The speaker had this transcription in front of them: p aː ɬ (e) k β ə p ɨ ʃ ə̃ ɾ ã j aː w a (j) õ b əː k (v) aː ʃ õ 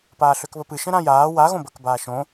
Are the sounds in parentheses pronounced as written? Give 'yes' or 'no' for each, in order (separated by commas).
no, no, no